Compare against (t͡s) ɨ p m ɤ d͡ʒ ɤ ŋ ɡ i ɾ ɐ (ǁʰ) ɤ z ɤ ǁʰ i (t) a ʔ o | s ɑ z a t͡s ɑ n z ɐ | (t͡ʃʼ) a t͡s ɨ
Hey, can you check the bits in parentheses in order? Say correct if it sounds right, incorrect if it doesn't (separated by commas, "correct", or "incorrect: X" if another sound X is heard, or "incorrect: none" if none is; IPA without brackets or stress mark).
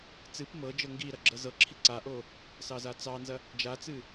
correct, incorrect: ɡ͡ǁ, incorrect: ǀ, incorrect: d͡ʒ